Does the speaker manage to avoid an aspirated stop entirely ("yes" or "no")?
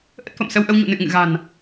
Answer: yes